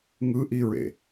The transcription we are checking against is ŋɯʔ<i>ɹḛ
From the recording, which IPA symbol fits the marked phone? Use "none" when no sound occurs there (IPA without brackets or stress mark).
i